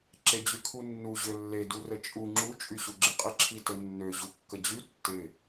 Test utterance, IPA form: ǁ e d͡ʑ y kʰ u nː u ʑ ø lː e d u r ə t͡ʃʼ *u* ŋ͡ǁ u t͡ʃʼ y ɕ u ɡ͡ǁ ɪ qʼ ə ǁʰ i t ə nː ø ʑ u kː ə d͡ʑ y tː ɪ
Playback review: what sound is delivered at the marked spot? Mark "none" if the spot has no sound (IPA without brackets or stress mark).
u